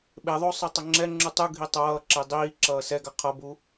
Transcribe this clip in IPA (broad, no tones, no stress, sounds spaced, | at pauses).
ɓ e ðˤ o sˤ ɯ tˤ ʌ ŋ͡ǁ ɛ ŋ͡ǁ u tˤ u ɡʱ i tˤ ʌː ǁ e dˤ iː ǁ ʌː s ɛ ɡ a qʰ ʌ b u